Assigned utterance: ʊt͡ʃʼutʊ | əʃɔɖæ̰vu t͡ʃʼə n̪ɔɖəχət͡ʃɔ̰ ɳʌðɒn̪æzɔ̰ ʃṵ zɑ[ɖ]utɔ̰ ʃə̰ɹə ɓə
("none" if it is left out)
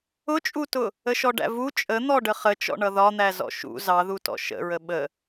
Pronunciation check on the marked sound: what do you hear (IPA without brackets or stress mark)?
ð